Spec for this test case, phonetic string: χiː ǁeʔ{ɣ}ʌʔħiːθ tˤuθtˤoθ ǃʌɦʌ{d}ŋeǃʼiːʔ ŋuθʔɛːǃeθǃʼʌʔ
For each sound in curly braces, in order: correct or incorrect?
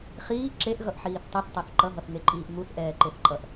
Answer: correct, incorrect: θ

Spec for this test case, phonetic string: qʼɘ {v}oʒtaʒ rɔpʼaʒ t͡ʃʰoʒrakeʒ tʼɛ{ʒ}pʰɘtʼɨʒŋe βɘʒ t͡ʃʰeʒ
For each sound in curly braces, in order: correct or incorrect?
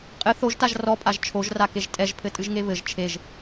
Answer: incorrect: θ, correct

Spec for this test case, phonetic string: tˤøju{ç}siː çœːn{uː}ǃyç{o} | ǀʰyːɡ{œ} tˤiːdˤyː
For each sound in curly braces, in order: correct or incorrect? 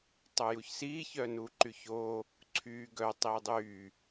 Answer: correct, correct, incorrect: oː, correct

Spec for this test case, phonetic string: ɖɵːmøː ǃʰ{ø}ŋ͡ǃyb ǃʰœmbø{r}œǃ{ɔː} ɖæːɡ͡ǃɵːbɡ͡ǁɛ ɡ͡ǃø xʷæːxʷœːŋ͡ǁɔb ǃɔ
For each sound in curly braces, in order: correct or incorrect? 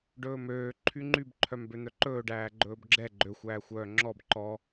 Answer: incorrect: y, incorrect: n̪, incorrect: ɵː

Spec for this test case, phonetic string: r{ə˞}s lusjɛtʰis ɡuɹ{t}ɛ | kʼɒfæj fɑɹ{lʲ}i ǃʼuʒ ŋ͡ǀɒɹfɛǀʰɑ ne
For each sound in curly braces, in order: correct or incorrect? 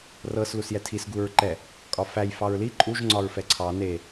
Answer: incorrect: ɤ, incorrect: ǃ, incorrect: l

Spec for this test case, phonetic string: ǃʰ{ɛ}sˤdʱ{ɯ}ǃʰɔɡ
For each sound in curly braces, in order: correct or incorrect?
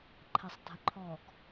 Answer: correct, incorrect: ə

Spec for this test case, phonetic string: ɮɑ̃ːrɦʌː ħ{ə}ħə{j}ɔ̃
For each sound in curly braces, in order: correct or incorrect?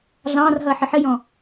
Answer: correct, correct

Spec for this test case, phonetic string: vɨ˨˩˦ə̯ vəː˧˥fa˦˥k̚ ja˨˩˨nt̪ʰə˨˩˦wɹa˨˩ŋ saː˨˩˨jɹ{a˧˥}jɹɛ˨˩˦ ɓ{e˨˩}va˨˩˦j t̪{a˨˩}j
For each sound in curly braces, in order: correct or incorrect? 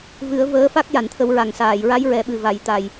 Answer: correct, incorrect: ɨ˨˩, correct

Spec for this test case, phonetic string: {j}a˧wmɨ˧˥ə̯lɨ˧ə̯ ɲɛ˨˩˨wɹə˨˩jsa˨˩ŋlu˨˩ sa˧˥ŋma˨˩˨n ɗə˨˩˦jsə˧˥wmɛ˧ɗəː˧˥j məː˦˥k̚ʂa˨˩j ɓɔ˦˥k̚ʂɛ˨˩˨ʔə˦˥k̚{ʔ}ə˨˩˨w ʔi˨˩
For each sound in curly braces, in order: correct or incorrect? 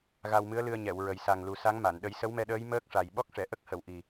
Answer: incorrect: ɣ, incorrect: h

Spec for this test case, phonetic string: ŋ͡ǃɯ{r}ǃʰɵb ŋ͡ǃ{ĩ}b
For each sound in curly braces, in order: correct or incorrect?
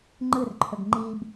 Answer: correct, incorrect: i

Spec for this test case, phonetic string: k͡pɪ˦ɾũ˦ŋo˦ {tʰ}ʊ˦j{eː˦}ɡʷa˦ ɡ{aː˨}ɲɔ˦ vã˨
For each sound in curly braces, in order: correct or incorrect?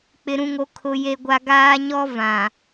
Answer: incorrect: kʰ, incorrect: e˦, incorrect: aː˦

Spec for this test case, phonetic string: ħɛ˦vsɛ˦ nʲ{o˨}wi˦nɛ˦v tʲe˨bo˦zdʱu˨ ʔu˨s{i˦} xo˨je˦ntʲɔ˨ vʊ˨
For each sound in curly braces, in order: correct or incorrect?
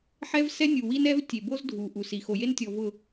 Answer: incorrect: u˨, incorrect: i˨

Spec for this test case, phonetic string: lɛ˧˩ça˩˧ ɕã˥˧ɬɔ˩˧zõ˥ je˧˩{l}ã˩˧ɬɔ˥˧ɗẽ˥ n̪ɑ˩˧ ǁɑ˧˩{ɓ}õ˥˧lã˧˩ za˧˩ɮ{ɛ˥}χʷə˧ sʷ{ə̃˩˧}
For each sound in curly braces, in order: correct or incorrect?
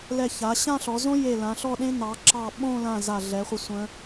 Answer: correct, correct, incorrect: ɛ˩˧, correct

